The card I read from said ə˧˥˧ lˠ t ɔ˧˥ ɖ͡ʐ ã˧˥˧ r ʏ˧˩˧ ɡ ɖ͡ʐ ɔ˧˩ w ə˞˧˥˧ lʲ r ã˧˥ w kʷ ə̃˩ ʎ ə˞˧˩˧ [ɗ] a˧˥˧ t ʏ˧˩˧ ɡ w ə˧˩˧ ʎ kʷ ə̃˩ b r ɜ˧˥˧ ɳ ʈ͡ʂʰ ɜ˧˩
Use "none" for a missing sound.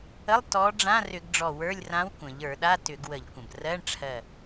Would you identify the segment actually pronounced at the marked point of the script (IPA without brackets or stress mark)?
ɗ